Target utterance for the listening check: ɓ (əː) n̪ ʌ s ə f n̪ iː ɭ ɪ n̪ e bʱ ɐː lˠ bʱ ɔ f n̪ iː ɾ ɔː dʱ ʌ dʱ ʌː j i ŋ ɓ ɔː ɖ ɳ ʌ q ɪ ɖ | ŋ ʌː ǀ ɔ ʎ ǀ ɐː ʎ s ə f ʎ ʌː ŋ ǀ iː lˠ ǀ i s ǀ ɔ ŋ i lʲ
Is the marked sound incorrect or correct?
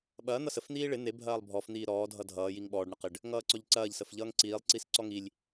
incorrect: ɐː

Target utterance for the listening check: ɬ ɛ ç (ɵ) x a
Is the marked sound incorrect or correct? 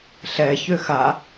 incorrect: ø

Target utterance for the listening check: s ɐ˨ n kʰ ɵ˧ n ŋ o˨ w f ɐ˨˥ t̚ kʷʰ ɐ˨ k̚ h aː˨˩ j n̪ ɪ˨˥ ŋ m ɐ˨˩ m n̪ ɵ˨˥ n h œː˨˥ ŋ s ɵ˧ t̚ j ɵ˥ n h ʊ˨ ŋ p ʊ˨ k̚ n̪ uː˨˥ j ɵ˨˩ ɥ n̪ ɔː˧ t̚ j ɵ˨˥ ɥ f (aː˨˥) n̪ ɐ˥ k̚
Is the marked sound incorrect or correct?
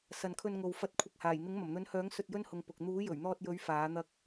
correct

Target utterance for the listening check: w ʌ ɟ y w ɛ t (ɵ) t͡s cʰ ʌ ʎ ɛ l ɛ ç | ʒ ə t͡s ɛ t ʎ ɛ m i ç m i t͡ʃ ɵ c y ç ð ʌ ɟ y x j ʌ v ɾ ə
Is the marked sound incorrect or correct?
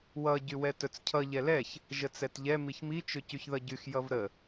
correct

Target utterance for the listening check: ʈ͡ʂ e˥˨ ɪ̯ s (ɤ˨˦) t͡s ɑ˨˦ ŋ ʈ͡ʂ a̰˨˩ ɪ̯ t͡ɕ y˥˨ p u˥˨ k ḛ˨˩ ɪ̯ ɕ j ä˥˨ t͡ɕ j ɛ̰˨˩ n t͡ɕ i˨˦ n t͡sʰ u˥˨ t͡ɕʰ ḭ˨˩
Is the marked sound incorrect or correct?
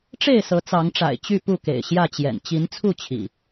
correct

